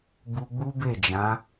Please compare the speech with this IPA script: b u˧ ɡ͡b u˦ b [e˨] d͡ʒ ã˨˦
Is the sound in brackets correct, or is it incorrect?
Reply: incorrect: e˦˨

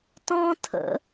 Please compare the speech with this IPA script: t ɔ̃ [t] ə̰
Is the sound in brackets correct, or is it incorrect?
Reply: incorrect: tʰ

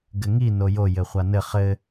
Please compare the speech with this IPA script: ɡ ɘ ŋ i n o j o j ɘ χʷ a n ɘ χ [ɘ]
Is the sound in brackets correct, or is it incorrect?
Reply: correct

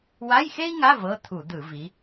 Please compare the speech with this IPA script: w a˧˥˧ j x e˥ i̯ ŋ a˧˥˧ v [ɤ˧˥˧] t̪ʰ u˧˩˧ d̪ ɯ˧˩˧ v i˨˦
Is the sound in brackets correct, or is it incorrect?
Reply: correct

